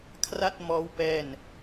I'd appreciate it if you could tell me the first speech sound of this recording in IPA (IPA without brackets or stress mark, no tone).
kʰ